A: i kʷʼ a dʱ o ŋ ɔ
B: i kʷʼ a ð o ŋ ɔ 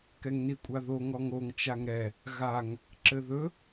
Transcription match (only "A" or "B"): B